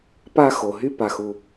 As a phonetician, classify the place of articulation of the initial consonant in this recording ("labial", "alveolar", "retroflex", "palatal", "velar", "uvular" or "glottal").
labial